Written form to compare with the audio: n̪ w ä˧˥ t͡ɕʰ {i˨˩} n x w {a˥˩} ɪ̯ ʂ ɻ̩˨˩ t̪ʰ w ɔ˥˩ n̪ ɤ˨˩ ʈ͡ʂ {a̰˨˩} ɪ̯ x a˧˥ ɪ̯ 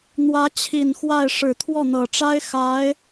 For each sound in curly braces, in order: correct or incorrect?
correct, correct, incorrect: a˥

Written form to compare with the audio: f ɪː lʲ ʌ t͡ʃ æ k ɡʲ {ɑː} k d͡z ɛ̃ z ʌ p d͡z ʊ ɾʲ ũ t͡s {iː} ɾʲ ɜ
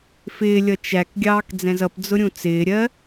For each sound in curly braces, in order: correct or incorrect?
correct, incorrect: ɪː

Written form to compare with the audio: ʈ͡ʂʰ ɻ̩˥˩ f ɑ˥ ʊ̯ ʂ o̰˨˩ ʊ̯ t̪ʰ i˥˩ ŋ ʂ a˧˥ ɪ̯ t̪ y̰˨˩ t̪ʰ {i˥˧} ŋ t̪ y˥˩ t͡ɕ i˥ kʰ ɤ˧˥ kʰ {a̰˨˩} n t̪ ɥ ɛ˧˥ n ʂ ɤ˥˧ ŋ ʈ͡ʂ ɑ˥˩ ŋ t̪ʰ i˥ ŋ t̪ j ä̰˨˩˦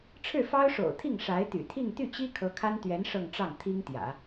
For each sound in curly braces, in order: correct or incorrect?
correct, incorrect: a˥

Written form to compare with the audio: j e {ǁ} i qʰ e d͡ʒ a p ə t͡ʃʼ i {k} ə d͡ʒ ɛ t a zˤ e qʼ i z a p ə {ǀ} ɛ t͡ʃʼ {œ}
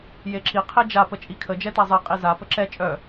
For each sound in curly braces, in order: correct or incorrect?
correct, incorrect: kʰ, incorrect: ǁ, correct

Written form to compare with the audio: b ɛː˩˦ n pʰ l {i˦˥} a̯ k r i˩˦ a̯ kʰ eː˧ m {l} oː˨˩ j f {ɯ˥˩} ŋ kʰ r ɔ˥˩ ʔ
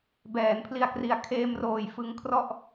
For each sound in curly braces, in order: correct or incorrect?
incorrect: i˨˩, incorrect: r, incorrect: ɯ˧

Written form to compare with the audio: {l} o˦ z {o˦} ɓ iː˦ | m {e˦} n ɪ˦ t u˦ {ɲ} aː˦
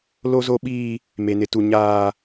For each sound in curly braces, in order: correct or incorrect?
correct, correct, correct, correct

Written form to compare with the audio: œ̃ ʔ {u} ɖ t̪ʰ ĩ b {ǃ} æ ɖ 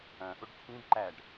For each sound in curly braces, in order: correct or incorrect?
correct, correct

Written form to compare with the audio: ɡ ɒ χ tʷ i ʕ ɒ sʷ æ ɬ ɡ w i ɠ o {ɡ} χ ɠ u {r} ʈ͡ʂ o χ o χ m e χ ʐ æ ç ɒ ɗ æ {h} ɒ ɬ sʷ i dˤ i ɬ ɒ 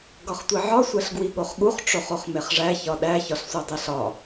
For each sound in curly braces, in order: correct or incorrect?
incorrect: none, incorrect: χ, incorrect: ç

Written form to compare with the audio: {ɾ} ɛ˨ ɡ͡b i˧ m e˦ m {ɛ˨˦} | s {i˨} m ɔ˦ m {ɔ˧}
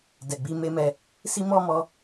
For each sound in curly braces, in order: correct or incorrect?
incorrect: d, incorrect: ɛ˧, incorrect: i˦, correct

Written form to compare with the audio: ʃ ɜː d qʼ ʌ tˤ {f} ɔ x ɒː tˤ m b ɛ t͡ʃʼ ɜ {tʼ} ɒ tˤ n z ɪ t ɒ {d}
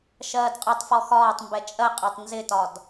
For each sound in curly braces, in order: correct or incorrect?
correct, incorrect: qʼ, correct

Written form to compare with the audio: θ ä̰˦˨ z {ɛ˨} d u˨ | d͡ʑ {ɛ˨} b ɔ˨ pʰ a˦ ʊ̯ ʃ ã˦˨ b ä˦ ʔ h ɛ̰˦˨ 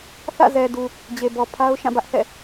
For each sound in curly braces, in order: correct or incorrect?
correct, incorrect: e˨

